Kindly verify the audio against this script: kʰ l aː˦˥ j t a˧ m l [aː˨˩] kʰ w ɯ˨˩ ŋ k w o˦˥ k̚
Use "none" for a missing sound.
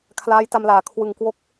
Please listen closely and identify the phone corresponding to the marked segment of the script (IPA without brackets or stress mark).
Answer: aː˨˩